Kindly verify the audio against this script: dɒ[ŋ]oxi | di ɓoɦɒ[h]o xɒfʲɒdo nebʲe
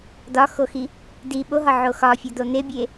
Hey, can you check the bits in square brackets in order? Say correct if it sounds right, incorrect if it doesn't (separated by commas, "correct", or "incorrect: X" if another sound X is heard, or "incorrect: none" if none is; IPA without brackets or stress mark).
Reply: incorrect: x, incorrect: ʕ